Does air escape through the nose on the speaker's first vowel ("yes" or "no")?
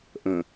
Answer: yes